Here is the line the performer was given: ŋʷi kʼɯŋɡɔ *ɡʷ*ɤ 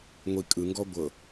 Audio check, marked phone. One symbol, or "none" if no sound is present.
ɡʷ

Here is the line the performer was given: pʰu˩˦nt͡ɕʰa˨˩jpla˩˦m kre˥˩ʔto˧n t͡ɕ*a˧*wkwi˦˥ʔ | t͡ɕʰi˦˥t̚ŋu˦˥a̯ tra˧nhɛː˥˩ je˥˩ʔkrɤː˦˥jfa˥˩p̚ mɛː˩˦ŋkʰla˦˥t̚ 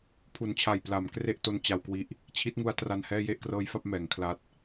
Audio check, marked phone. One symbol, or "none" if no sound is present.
a˧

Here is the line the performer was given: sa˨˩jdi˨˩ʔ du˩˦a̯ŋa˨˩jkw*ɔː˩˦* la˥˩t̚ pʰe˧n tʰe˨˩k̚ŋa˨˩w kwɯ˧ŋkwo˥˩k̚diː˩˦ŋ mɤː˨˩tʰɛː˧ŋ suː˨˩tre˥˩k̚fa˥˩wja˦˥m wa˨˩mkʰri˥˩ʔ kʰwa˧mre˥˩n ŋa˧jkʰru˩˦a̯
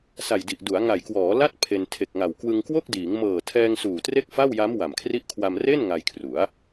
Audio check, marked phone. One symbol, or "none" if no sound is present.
ɔː˩˦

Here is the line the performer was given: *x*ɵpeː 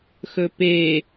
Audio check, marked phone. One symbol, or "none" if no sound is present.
x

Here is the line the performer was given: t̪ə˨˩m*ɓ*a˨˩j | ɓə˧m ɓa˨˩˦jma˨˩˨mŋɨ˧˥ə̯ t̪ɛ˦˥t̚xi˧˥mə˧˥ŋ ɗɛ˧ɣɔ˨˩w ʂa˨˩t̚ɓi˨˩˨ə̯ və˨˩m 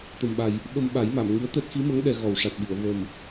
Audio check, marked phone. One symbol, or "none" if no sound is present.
ɓ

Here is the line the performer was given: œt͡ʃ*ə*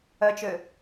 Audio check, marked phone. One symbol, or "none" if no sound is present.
ø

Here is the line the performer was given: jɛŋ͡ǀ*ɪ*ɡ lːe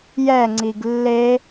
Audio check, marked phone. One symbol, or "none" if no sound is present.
i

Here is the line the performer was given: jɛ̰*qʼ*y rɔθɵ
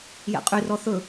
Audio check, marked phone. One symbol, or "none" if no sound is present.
qʼ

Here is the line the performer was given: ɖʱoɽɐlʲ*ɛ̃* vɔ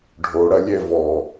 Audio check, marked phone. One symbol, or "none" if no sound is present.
ɛ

